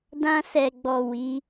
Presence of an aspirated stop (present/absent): absent